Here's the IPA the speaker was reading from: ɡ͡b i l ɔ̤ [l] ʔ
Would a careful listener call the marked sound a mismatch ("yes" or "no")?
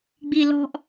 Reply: yes